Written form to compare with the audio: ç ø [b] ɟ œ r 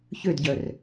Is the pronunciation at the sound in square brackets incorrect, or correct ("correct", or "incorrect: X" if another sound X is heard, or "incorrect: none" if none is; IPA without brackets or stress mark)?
incorrect: d